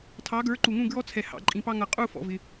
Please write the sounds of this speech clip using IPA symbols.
tʰ ɑ˩˥ ɡ ə˞˩˥ ǃ u˩ ŋ ũ˥˩ ɡ ɹ ɔ˧ t͡sʰ ɛ˩ h ɑ̰˩ ǃʼ ĩ˩ p ɑ˧ ŋ ʌ˩ qʼ u˥˩ f ɔ̰˩ v ɪ˩

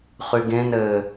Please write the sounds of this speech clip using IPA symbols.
χ y ɡ ẽ n ɘ

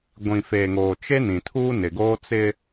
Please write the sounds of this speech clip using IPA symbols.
ɡʷ ĩ˨ f eː˨ ŋ oː˨ t͡ʃ e˦ n ĩ˨ tʰ uː˦ n ɪ˨ ɡ oː˦ t͡s ɪ˦

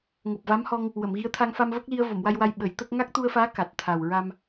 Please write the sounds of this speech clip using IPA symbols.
ŋ o˨˩ p̚ v a˧˥ m h ɔ˧ ŋ | w ə˨˩˨ m ɣ i˧˥ ə̯ t̪ʰ a˧ ŋ f a˧ m v ə˦˥ k̚ l i˧ ə̯ v o˨˩˨ m w a˧ j w a˧ j ɓ ə˨˩˦ j t̪ ə˦˥ k̚ ŋ a˦˥ k̚ t̪ u˧ ə̯ f aː˧˥ k a˨˩ t̚ t̪ʰ a˨˩ w ɹ a˧ m

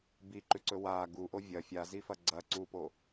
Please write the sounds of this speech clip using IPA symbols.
b i ǃ ʉ ǀ ɵ w a ɡ u ʔ o vʲ ɐ fʲ a z i f ɐ ɡ͡ǀ ɐ ǀ u p o

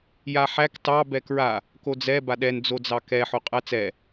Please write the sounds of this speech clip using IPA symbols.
j a ħ æ k t ɑ b ɛ k ɹ a | k o d͡z ɛ b a ɗ ɛ n d͡z o d͡z ɑ k ɛ ħ o qʼ æ t͡s ɛ

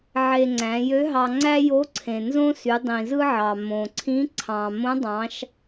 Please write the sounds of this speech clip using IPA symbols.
ʕ e˧ ŋ͡ǀ æ̃˩˧ j ø˧˥ ɦ ɑ˧ ŋ͡ǀ æ˥ j o˧˥ ǀʰ ẽ˩ n z õ˥ s y˩˧ dˤ ĩ˩ z ɯ˥ ʕ ɑ˩ m õ˩ ǀʰ ĩ˧˥ ǀʰ ɑ̃˩ m õ˧˥ dˤ ɑ̃˩˧ ʃ

